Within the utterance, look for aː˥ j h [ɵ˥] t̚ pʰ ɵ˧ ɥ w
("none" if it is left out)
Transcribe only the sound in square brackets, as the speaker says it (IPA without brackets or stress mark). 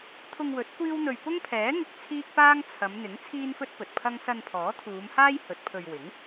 ɵ˨˥